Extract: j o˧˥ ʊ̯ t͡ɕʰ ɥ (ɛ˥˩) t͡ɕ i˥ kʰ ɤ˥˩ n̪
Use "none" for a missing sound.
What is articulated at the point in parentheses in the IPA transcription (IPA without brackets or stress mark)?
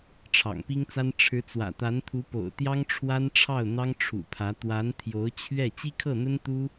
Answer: ɛ˥˩